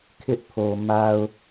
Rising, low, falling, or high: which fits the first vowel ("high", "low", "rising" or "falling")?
high